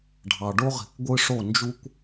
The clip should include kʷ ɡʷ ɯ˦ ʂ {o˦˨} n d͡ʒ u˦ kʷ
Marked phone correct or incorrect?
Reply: correct